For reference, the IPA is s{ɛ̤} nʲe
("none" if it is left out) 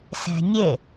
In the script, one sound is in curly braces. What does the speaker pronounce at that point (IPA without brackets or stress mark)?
ɛ̤